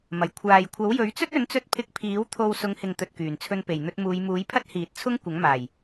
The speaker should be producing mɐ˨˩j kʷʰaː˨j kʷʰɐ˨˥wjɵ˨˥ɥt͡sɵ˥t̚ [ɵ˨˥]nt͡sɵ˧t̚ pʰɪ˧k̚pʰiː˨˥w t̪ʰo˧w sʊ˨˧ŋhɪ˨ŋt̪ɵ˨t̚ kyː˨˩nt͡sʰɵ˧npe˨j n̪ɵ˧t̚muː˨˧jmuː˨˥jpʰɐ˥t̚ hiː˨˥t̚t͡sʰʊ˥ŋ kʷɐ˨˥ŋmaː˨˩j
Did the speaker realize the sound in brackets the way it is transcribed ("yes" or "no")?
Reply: yes